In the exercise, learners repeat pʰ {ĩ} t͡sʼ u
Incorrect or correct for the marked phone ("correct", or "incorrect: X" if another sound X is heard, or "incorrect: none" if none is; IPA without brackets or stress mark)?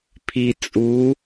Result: incorrect: i